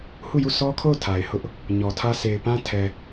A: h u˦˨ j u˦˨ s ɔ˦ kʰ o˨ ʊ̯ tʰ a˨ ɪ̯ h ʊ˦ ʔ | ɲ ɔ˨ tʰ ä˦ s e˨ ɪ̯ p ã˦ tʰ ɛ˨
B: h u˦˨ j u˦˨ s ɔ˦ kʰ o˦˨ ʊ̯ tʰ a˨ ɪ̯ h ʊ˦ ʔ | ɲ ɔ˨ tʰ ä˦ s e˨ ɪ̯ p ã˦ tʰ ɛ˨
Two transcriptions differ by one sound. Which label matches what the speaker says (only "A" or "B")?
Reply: B